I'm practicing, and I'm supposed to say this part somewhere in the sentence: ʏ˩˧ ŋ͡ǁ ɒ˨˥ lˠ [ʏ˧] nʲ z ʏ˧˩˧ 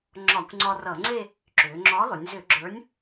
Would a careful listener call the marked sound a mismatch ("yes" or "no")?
yes